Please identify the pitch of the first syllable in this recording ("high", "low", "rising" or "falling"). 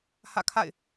falling